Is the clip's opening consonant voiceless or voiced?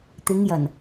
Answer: voiceless